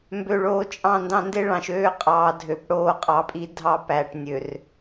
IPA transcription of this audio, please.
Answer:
m b ø˨ ɭ oː˨ t͡ʃʼ ɑ̃˦˨ n d ɑ̃˦ n d e˦ ɭ ɑ̃˨ ʃ øː˦ qʼ ɑː˨ dʱ ø˨ p ɽ oː˦˨ qʼ ɑ˨ pʼ i˦ dʱ ɑ˦ p æ˨ ʈ nʲ ø˨ r

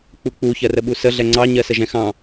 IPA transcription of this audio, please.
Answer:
k͡p u k͡p u ç ɜ r ə ɓ u s ə ɮ ɛ ŋ͡ǀ ɑ ɲ ɜ s ə ʒ ɛ̃ x ɑ̃

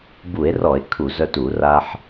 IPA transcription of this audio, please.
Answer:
b u˧˩˧ e̯ r ɔ˧˩˧ e̯ kʰ u˧˩˧ z œ˧ t u˧˩˧ r a˧ ħ

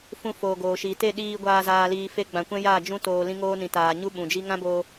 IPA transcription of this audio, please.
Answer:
f ũ˧ f oː˨ ɡ oː˨ ʃ iː˨ t e˦˨ ɗ iː˧ ɡʷ aː˧ z aː˨ l iː˨ f e˧ ɡ͡b ã˨ kʷ ɛ̃˦ j aː˦˨ d͡ʒ ũ˦ t oː˨ l ĩ˧ ŋ oː˧ n ĩ˨ t aː˨ ɲ u˧ ɓ ũ˨ d͡ʒ i˦ ŋ ã˦ b oː˧

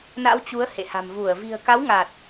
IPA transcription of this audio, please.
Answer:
n a̰˧˥ w t͡ɕ u˨˦ ə̯ h ḛ˧˨ h a̤˨˩ m v u˧˩ ə̯ v i̤˨˩ ə̯ k a˨˦ w ŋ a˨˩ t̚

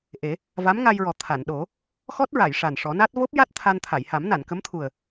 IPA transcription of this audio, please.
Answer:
ʔ e˨˩˦ | v a˧˥ m ŋ a˧ j ɹ ɔ˨˩ t̪ʰ a˨˩˨ n ɗ o˨˩˦ | x ɔ˦˥ t̚ ɹ a˨˩˨ j ʂ a˨˩ n ʂ ɔ˨˩˦ n a˦˥ t̚ v o˦˥ p̚ j a˦˥ t̚ t̪ʰ a˧ n t̪ʰ a˨˩˨ j h a˨˩˦ m n a˨˩˨ n k ə˧˥ m t̪ʰ u˨˩ ə̯

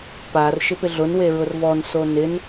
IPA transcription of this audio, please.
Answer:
p a r ʃ ɪ p ɪ ɮ ʊ n w e ɹ ʊ r v ɔ n s o n ɪ n

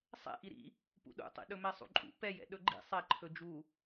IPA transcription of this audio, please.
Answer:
sˤ ɛ̰ ʔ i ɾ ḭ | p ṵ ɗ ṵ tˤ ḭ ɗ ɵ m ɛ sˤ ṵ ǃʼ ṵ p ɛ j ɛ̰ ɗ ɵ ɡ͡ǃ ḭ sˤ ɛ ǃʰ ɵ d͡ʒ u

